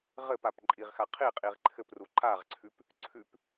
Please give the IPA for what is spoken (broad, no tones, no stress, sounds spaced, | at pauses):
ʁ ɘ p a p ǃʼ i ʁ x a qʰ i qʼ i ʁ ǃʰ ɘ p r u ǃ a ʁ ǀʰ ʉ p | ǀʰ ʉ p